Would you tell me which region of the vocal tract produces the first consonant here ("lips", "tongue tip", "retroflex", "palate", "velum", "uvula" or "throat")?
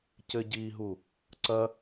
palate